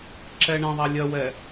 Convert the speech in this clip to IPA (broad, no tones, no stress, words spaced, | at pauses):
ǁɛɳɛ̃ðˤæ lʲɜwɛ